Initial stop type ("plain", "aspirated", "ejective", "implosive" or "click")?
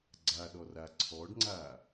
click